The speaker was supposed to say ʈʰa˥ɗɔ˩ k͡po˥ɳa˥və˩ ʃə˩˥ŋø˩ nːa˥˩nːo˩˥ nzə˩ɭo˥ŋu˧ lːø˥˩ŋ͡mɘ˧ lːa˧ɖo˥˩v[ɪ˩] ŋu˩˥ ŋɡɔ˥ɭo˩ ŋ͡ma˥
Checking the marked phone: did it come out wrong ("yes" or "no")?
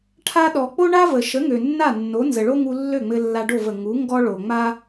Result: yes